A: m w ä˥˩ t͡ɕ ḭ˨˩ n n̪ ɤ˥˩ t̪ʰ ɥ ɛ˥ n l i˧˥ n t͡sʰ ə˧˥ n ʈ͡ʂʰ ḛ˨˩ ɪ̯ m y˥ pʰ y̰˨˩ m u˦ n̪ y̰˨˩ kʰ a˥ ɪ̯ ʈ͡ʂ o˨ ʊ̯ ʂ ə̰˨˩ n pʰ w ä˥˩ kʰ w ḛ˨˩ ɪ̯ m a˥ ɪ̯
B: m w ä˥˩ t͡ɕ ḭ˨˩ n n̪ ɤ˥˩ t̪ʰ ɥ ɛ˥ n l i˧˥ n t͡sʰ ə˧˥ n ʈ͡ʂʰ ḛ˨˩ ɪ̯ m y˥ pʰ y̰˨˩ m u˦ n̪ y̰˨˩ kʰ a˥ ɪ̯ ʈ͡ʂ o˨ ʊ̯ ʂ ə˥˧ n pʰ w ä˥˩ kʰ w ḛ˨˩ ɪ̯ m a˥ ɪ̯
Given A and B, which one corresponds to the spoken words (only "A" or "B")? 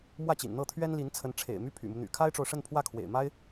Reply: B